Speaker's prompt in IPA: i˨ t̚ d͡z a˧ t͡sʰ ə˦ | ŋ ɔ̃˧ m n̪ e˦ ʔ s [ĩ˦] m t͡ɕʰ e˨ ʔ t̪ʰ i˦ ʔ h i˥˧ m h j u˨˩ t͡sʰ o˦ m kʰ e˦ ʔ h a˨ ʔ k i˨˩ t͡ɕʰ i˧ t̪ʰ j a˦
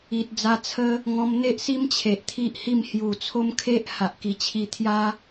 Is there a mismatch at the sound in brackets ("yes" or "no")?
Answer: yes